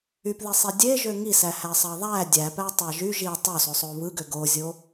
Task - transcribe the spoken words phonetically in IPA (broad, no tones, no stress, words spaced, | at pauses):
ypðisˤi dʲeʒø ŋisæhæsˤɑ ðˤæ dʲæpætˤɑ ʒy ʒi tˤososˤo βɯɡø ɡozʲo